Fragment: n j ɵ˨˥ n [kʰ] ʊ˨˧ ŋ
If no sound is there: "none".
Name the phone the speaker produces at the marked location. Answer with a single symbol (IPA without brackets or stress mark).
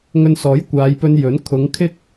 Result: kʰ